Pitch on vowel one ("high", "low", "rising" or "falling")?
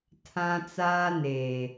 high